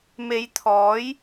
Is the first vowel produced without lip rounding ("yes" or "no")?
yes